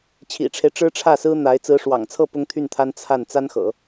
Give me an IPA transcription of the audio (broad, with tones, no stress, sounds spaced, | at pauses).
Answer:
t͡ɕʰ ḭ˨˩ ʈ͡ʂʰ e˦ ɪ̯ ʈ͡ʂ ɻ̩˥ ʈ͡ʂʰ ä˥˩ s ɹ̩˥ n̪ a˧˥ ɪ̯ t͡s ɹ̩˧˥ ʂ w ɑ̰˨˩ ŋ t͡sʰ ɤ˥˩ p ʊ˥ ŋ t̪ʰ y˥˩ n t̪ʰ a˥ n t͡sʰ a˥˩ n t͡s a˥ n x ɤ̰˨˩˦